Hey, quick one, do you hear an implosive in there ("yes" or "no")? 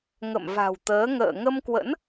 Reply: no